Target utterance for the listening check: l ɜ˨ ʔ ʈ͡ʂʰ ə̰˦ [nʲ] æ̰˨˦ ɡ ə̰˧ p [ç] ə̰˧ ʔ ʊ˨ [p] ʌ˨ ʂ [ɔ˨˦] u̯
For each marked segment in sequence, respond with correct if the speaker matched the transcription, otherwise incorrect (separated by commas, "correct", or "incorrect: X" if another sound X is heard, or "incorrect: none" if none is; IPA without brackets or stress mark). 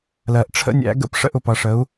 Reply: correct, incorrect: ʂ, correct, incorrect: ə˨˦